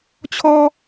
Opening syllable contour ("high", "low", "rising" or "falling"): high